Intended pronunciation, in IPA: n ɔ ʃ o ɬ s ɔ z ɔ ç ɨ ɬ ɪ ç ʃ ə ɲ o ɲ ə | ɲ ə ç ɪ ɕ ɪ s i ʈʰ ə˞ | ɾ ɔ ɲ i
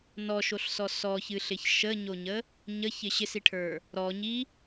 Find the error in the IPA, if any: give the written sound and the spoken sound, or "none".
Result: z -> s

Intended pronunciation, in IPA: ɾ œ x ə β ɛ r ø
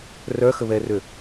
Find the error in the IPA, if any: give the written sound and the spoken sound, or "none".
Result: ɾ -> r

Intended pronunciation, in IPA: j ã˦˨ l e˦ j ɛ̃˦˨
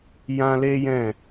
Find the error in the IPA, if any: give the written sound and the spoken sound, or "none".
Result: ã˦˨ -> ã˦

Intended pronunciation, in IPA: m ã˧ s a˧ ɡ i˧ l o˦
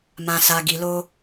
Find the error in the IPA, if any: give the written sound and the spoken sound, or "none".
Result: none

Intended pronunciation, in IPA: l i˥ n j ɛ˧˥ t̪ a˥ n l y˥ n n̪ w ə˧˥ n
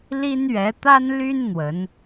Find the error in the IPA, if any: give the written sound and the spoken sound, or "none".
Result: j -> ɥ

